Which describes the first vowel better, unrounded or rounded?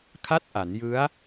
unrounded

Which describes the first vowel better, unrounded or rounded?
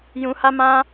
rounded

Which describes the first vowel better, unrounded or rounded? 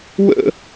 unrounded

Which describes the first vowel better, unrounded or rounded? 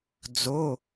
rounded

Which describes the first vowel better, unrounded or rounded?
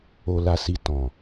rounded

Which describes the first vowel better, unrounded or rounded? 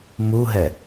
rounded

